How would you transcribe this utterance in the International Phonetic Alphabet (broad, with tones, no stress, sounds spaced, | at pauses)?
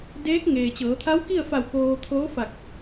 d eː˧˥ k̚ ŋ eː˩ t͡ɕ ɤː˩˧ t̪ʰ a˧˥ w k i˥˨ ə̯ f a˧˩ w k oː˧ t̪ʰ oː˧˥ f a˧˩ k̚